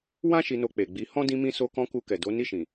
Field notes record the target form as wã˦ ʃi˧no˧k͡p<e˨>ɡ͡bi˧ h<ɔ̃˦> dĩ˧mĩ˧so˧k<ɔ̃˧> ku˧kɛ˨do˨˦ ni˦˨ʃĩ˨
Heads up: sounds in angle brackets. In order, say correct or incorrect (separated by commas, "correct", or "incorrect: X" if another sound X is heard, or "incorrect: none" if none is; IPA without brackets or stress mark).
correct, correct, correct